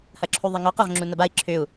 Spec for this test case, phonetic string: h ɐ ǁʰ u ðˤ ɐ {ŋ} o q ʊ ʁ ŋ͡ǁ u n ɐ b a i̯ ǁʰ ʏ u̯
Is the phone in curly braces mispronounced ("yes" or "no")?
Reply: no